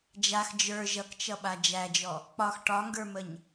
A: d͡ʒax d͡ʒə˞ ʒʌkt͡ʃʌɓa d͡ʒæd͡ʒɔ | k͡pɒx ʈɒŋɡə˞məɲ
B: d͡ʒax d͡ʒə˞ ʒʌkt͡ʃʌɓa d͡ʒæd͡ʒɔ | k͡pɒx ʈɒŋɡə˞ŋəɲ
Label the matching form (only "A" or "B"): A